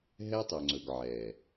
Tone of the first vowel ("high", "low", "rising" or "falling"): high